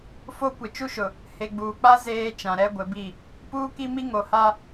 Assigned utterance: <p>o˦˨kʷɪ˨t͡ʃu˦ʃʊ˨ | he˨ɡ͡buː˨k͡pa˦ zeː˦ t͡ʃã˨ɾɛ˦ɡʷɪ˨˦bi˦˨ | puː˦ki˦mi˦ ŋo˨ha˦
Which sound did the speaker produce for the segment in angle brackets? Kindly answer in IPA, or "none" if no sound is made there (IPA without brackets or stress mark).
f